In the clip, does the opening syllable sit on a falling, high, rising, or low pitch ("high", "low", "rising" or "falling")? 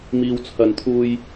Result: low